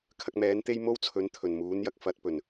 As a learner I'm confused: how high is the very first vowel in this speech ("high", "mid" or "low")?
low